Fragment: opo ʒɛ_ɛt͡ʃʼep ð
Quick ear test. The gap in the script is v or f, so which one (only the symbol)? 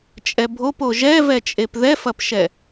v